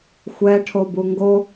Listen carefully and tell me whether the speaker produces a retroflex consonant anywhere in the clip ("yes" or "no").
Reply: yes